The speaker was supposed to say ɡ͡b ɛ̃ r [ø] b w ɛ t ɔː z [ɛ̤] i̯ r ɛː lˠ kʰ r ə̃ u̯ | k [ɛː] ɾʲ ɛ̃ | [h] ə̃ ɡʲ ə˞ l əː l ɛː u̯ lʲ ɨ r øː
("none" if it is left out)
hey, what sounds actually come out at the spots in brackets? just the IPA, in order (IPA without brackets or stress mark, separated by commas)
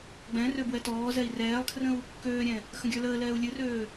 ø, ɛ, øː, x